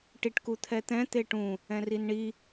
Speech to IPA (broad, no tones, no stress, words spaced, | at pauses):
ʈiʈkut̪ʰɛt̪ɛ̃ t̪eʈũ | ɛ̃rinɳi